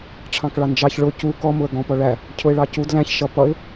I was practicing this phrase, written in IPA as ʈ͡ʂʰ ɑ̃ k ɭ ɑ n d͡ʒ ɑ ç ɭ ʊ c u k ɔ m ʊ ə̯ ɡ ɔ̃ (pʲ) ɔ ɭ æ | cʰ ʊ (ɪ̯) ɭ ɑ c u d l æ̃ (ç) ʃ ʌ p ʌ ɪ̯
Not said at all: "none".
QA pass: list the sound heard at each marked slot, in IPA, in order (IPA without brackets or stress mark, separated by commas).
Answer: p, ɪ̯, ç